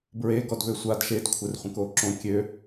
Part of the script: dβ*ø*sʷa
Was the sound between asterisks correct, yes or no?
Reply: yes